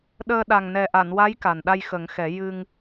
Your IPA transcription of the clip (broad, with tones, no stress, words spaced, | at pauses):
ɗəː˧ɗa˨˩ŋ nɛ˨˩ʔa˨˩˨nwa˧˥j ka˨˩n ɗa˧j xə˨˩˦ŋxɛ˨˩˦ jɨ˧ŋ